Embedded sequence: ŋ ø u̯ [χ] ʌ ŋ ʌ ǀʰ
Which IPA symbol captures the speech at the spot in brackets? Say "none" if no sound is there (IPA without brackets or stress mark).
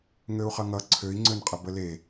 χ